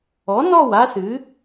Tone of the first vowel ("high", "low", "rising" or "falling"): rising